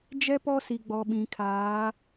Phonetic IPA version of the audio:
d͡ʒ ɛ˦ p ɔ˦ s i˨ ɡ͡b ɔ˨ ɓ ĩ˨ kʰ aː˨˦

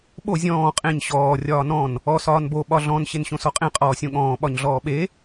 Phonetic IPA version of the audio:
ɓ o zʲ ɔ̃ː qʼ ẽ ɲ ɕ ɔː rʲ ɒː n ɔ̃ n | ɔ s ɒː n b o ɓ ɒ ɮ ɔ̃ n ɕ e n ɕ õ s ɔ qʼ ẽ qʼ ɔː sʲ õ ɠ ɔ̃ː ɓ ɒ ɲ ɮ ɔː ɓ e

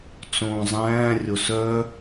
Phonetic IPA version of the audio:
t͡s õː zˤ æ̃ː rʲ o s œ

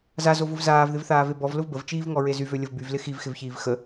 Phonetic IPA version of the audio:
z a z o v ʊ v z aː v ð ɪ v θ aː v e b ɔ v l ʊ v b ə v t͡ʃ iː v ŋ ɔ ɹ e z y v ø lʲ ə v b y v l ɪ x i v x ɪ v ç iː v x ə

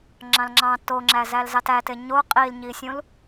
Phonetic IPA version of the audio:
ŋ͡ǁ ɑ̃ l ŋ͡ǁ ɑ̃ t o ŋ͡ǁ æ z æ l z ɑ t æ t e ɲ o qʼ i l ɲ i sʲ ũ l

